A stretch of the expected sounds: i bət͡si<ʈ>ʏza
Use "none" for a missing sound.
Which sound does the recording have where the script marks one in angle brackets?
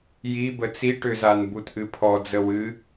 ʈ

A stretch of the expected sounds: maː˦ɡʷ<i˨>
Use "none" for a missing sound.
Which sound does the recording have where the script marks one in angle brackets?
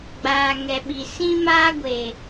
e˨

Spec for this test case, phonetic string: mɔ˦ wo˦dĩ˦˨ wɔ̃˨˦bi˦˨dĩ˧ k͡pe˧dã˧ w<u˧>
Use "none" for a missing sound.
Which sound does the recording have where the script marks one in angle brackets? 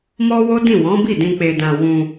ũ˧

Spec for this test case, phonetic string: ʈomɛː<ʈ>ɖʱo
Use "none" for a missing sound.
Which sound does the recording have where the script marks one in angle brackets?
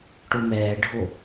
none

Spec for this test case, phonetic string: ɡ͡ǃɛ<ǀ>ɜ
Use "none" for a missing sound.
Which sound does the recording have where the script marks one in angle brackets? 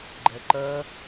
ǃ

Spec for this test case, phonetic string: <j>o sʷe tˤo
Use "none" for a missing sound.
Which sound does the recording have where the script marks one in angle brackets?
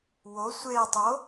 w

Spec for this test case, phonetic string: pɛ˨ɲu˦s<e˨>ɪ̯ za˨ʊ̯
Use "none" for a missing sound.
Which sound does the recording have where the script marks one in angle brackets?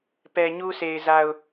e˨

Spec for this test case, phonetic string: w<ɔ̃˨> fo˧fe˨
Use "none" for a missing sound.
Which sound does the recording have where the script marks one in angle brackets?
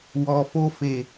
ɔ˨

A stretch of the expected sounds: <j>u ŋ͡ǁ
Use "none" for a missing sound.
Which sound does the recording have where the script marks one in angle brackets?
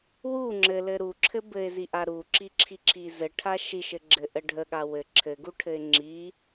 w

